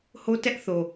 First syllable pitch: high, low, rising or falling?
high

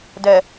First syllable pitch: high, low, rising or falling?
low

